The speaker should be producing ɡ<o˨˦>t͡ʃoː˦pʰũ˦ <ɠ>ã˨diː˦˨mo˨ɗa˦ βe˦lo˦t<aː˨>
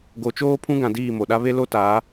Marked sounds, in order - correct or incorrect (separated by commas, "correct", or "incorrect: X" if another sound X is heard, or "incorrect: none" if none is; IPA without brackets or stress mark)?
correct, incorrect: ɡ, incorrect: aː˨˦